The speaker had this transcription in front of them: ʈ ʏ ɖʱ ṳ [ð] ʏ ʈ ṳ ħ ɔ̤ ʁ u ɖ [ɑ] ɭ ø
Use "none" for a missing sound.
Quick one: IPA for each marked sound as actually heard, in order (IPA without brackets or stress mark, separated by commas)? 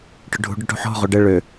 ɖ, ə